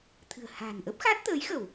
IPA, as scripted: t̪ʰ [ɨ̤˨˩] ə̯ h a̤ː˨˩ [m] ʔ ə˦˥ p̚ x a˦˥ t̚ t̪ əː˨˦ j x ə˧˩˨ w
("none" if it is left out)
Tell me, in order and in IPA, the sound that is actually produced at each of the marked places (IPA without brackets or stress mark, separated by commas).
ɨ̤˨˩, n